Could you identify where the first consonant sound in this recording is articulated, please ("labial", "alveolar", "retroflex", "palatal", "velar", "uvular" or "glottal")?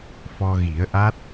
labial